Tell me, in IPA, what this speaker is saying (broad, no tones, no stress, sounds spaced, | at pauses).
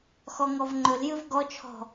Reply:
x ɔ ŋ ɔ v ŋ͡ǃ ɵ l j ɨ v ɡ ɔ t͡ʃʰ ɔ̤